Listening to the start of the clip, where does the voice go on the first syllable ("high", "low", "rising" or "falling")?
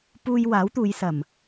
high